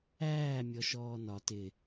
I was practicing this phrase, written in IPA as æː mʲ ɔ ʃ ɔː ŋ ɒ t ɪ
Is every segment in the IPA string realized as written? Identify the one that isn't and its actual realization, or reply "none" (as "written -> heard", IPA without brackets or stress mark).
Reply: ŋ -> n